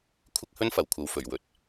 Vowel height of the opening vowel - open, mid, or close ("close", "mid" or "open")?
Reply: close